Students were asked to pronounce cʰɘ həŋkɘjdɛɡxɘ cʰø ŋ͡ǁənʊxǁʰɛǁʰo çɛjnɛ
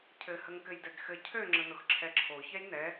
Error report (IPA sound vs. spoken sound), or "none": none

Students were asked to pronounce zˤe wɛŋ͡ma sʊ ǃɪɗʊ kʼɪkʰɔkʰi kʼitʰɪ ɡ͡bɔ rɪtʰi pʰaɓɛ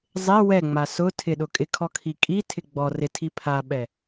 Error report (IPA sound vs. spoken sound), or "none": ǃ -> tʰ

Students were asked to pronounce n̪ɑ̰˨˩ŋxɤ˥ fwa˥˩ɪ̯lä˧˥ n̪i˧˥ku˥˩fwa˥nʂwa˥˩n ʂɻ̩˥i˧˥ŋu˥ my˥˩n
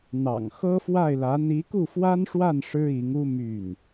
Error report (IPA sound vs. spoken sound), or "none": none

